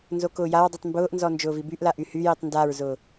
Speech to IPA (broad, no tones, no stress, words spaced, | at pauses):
nzokʊːjaɹdˤytˤ mbʊːʔnzɔ nd͡ʒʊːvibyʔla ʔyhyjitˤ ndaɹzʊː